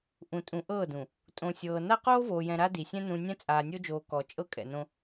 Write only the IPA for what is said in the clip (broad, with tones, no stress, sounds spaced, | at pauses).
ʔ ũ˨ tʼ ũ˨ ʔ ɤː˦˨ d ũ˨ | tʼ õ˨ sʲ ɤː˨ n a˦ q oː˦ v oː˨ j ɛ̃˨ ɾ a˦ d i˨ sʲ ɛ̃˦ n ũ˨ nʲ ɛ̃˦ t͡sʼ aː˨ nʲ o˦ d͡ʒ oː˨ k ɔ˨ t͡ʃʼ ɤ˦ kʼ ɛ̰˨ n õ˦